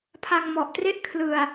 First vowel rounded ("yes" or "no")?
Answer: no